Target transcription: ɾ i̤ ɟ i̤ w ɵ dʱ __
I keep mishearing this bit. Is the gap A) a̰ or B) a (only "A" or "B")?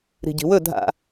A